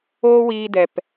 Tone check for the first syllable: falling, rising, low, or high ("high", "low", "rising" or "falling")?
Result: high